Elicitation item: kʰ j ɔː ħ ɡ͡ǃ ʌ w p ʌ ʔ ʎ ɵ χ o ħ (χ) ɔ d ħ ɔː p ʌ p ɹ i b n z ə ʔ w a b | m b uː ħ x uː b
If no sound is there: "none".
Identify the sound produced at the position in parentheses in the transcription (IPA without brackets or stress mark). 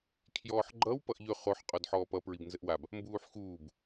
qʼ